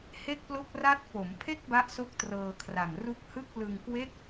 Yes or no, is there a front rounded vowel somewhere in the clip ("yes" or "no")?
no